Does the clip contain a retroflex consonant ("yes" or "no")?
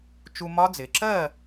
no